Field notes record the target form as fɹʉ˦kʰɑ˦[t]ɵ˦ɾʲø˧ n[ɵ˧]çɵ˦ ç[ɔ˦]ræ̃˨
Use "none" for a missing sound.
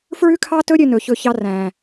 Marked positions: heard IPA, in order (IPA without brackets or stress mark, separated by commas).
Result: t, ɵ˧, ɑ˦